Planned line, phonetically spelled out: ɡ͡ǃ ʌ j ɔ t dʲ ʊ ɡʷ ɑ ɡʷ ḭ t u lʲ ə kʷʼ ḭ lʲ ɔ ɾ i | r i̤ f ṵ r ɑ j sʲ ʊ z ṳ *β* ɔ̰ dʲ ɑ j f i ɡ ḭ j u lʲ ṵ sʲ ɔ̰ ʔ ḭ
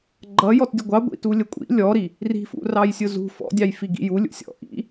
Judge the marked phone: incorrect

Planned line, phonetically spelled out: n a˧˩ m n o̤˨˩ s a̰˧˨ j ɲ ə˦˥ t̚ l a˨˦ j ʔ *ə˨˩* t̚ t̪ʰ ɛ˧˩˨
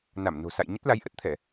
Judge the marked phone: incorrect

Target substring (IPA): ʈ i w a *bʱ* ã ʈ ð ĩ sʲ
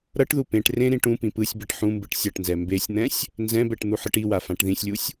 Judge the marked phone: incorrect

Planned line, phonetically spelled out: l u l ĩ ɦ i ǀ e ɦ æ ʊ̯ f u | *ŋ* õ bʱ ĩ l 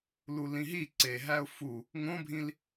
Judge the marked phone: correct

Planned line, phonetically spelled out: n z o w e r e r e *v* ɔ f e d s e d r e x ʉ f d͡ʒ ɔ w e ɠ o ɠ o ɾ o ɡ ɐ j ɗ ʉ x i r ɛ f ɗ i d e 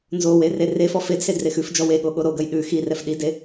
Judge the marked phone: incorrect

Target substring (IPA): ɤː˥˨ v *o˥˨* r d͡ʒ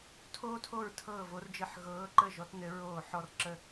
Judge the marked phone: incorrect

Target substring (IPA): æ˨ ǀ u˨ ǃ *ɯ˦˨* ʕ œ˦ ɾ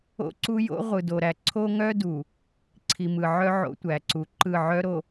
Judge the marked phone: correct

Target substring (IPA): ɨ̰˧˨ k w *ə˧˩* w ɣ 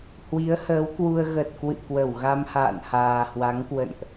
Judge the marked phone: correct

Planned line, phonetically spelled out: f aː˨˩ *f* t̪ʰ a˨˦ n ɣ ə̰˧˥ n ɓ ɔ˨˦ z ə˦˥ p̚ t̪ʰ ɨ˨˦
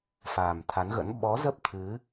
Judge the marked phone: incorrect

